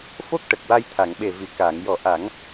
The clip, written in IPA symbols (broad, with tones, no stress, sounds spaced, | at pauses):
f o˦˥ k̚ ʈ ə˨˩ k̚ w a˧ j t̪ʰ a˨˩˨ ŋ ɓ e˨˩ v i˨˩˨ k aː˨˩˨ ŋ j ɔ˨˩˦ ʔ a˨˩˦ ŋ